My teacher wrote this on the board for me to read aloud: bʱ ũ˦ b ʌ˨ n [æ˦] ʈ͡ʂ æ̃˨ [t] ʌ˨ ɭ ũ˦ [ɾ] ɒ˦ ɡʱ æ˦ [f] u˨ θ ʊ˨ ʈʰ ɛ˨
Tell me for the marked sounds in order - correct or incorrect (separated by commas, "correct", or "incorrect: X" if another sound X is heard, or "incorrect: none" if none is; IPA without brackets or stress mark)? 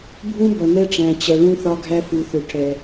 incorrect: ɛ˦, incorrect: t͡ɕ, incorrect: θ, correct